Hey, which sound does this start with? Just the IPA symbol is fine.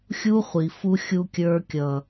xʲ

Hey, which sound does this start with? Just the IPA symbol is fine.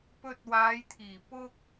p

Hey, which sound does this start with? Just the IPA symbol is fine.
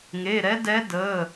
ŋ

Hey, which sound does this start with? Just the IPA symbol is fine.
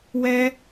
w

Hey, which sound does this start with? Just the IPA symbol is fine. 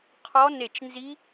qʰ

